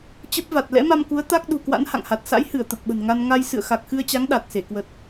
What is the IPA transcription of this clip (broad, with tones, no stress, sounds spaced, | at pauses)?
t͡ɕ ə˦˥ p̚ v a˨˩ t̚ l ɛ̰˧˥ m a˧ m k u˨˦ ə̯ t̪ a˦˥ k̚ ɗ ṳ˨˩ k w a̰˧˥ n h a̰˧˨ ŋ h a˨˩ t̚ s a̰˧˥ j h ɨ˧˩ ə̯ t̪ ə˨˩ p̚ ɓ ə̤˨˩ n ŋ a˧ n ŋ a˧ j s ɨ̰˧˨ ə̯ x a˨˩ k̚ x ɨ˧ ə̯ t͡ɕ a˨˦ ŋ ɗ a˨˩ t̚ s e˧˩ k w ə˨˩ t̚